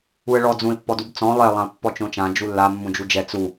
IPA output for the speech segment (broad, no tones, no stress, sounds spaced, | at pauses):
u ə̯ ɭ ɔ d͡z ũ ɪ̯ pː ɔ d u b t͡s ɔ̃ lˠ e lˠ ã ʊ̯ pː ɔ t͡ʃ õ t͡ʃ ã d͡ʒ u lː a mː ũ d͡ʒ u d͡ʒ ɛ t͡s u